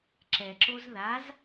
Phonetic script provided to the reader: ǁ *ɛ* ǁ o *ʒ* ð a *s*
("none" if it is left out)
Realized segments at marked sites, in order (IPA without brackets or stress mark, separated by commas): ɛ, z, z